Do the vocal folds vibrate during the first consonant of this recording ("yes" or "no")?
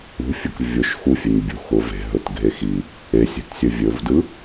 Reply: no